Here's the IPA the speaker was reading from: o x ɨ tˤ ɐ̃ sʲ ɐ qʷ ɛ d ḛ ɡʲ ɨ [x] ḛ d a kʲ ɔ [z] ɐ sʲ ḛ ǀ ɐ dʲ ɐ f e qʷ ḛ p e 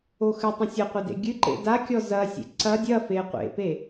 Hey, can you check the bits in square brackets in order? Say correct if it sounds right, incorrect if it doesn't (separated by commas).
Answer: incorrect, correct